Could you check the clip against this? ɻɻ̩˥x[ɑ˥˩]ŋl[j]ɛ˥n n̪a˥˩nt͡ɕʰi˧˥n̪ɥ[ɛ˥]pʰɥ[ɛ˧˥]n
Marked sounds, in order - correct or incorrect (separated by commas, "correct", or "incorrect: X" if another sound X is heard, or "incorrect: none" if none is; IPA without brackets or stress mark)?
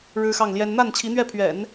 correct, correct, incorrect: ɛ˥˩, incorrect: ɛ̰˨˩˦